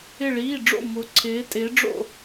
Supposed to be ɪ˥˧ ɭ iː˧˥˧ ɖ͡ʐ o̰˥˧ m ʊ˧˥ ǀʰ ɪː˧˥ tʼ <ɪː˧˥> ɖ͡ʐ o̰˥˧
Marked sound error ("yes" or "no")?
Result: no